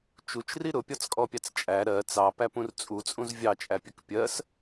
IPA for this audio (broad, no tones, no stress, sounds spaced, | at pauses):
t͡ʃ u t͡ʃ r i ɾ ʊ pʲ ɒ t͡s kʼ ɔ pʲ ɑ t͡s t͡ʃʼ æ ɾ ɜ t͡s ɑ p æ p ũ r t͡sʼ u t͡sʼ ũ z vʲ ɑ t͡ʃʼ æ pʲ ə k pʲ ɜ s